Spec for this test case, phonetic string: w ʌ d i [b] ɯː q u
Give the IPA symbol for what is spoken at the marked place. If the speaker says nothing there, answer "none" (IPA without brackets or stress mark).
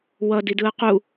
d